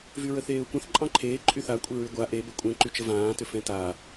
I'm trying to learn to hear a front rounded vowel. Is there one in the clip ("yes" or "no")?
yes